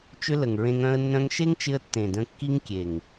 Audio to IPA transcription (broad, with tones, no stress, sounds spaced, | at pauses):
t͡ʃ ʏ˦ l ə˨ ŋ ɹ ẽ˧ ŋ œ̃˦ ə̯ nː œ̃˧ ŋ ʃ e˦ ŋ t͡ʃ ɪ˧ ə̯ tː ẽ˨ d ə̃˧ kː i˦ ŋ kʲ e˨ ŋ